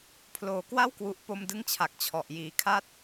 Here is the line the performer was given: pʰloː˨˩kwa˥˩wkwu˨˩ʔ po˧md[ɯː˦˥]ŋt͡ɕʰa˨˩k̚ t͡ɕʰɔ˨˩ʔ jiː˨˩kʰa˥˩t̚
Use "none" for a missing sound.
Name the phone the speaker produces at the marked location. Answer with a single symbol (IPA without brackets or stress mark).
ɯ˦˥